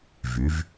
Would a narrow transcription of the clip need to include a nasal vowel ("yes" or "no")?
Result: no